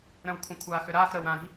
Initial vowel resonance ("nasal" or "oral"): nasal